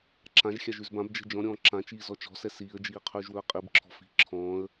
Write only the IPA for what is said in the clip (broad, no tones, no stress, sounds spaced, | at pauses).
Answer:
ǁ ã ʒ xʲ a ʒ ʉ z b ã b d͡ʒ ɛ̤ d͡ʒ ɔ̃ ɾʲ ɔ̃ː ǁ ã t͡ʃ iː z ɔ t͡ʃ ɔ̤ s ɛ s iː ə̯ d͡ʒ iː qʰ ʉː ʒ w ɵ ə̯ qʼ i b ǁʰ ɔ̤ f i̤ ǁʰ ɔ̃ː ə̯